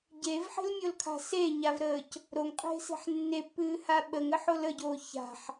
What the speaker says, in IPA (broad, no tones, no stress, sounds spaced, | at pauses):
ɟ e v ħ e̤ l mʲ o l kʰ a̤ s e ɲ a v ɾ əː c | ɾ o ŋ qʼ e̤ s e̤ ħ nː e pː ɨː h a ɓ ə ŋ ə ħ o l ə ɟ oː ç a̤ ħ